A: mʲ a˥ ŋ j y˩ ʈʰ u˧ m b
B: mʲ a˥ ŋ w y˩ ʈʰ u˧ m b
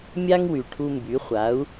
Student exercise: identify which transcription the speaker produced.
B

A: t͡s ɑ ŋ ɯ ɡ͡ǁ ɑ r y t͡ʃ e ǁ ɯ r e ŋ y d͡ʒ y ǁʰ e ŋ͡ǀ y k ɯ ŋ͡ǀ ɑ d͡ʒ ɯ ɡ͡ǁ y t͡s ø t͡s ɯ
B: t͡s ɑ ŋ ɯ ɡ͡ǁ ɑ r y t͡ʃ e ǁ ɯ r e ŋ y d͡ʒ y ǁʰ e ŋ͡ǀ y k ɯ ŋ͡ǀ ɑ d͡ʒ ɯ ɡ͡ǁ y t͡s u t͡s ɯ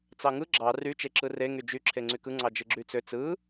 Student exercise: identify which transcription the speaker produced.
A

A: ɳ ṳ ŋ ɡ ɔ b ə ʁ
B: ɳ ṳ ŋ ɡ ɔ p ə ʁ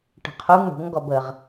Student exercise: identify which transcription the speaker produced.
A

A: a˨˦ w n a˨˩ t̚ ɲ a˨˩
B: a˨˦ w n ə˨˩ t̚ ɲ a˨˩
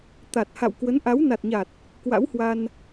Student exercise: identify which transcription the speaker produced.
A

